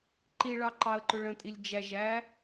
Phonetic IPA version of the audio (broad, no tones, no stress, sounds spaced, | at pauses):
ǃ i ɭ ɑ ǃ ɑ ə̯ ǃ ʊ ɭ ə̃ tʼ i lʲ d͡ʒ æ ʒ æ